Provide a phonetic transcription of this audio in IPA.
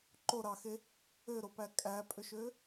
ǃ o ɾ ɑ x e | ø ɾ o p æ kʼ æ pʼ ø ʃ ø

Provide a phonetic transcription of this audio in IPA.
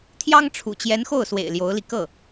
t̪ʰ j ɑ˥ ŋ ʈ͡ʂʰ ṵ˨˩ t͡ɕ j ɛ˧˥ n x o˥˩ ʊ̯ s w ḛ˨˩ ɪ̯ l j o˧˥ ʊ̯ l i˧ k ɤ˥˩

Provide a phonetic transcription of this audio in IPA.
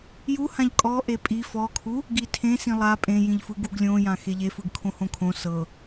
j u h ã ʎ kʼ ɔ ʔ e pʼ i f ɔ kʰ u | ɡ i tʰ ẽ s ĩ lˠ a pʼ ẽ j ĩ ʎ f ɯ ɡ u ɡ lʲ õ j ã x e ʎ e f ɯ ɡ kʰ õ h õ kʰ õ s ɤ

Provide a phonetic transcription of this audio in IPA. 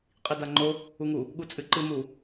qʼ i d a ŋ͡ǃ o | u ŋ u | ɠ u t͡sʼ ɨ ǃ ɨ m u

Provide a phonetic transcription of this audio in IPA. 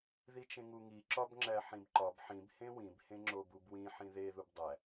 ð i t͡ʃ ẽ ŋ u ŋ i ǁ ɒ b ŋ͡ǁ æ ħ ĩ b ǃ ɒ b ħ ĩ b h ẽ w ĩ b h ẽ ŋ͡ǁ o b u b w ĩ ħ ĩ ð e ð u b dˤ æ

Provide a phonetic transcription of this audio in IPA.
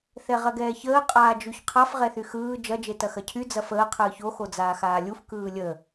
θ ɛ ʁ ɐ ɡ ɛː ç əː qʼ aː d͡ʒ y ç qʰ a f ʁ ɛ θ y x ɯː d͡ʒ ɐ d͡ʒ e t ɐ x ɐ cʰ y d͡z ɐ f əː qʰ ɯː ç o x o d͡z aː x aː lʲ u f k ɯː lʲ ə

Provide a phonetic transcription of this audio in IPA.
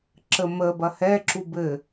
ǁ ə m ə b ɐ h ɛ ǁ u b ɘ

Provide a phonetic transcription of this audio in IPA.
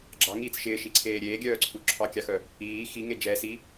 ɡ͡ǁ ɑ ŋ iː t͡s ʃ ɪː ʃ i ǀʰ eː ɾʲ eː ɡʲ œː ǀʰ u ǁʰ ɑ kʲ ɑ x œ | iː x i ŋ e d͡ʒ ɛ s i

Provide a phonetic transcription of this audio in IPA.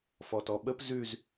f ɔ t ɔ ɓ ə p z ʉ z

